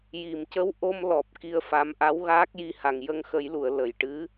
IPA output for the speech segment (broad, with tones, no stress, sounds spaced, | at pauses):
j i˨˩˨ m c ə˧˥ w ʔ o˧ m l ɔ˨˩ p̚ k i˧ ə̯ f a˧˥ m ʔ a˧˥ w ɣ aː˦˥ k̚ j i˧ h a˨˩ ŋ j ə˧ ŋ x ə˨˩˦ j l u˨˩˨ ə̯ l ə˨˩˨ j ʈ ɨ˧˥